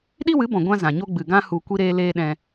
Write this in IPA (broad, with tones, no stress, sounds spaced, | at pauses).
ɗ i˦ w ɨ˨˦ b ɔ̃˨ ɡʷ ã˦ z ã˨ ɲ o˦ ɡ͡b ɨ˨ ɡ ã˦ h u˧ kʷ i˦ ɾ eː˦ l eː˦ ɗ ɛ̃˧